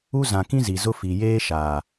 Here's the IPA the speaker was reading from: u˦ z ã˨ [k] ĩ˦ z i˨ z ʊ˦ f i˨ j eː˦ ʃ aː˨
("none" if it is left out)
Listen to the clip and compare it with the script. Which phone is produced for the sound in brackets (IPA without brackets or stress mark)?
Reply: k